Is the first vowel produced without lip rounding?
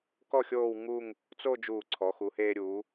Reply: no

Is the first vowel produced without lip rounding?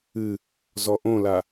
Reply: yes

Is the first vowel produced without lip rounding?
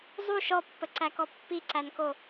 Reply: no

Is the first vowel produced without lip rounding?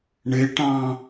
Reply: yes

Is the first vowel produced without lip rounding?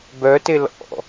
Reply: no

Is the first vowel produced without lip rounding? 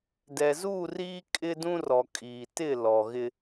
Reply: yes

